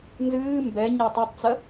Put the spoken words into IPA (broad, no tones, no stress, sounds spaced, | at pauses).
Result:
n z ɨː m b ɛ ɲ a tˤ u tˤ t͡s ɐ